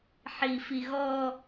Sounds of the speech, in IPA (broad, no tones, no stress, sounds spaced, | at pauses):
ħ i f i ɣ ɔ